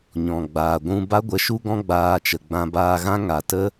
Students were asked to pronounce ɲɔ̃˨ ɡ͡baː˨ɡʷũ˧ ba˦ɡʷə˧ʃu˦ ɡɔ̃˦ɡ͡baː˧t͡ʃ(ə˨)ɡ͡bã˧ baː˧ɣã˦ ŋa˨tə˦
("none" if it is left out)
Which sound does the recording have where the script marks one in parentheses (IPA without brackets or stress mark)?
ə˨